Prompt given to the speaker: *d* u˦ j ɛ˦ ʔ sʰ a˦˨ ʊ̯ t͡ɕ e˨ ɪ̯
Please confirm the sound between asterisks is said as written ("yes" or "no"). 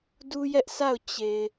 yes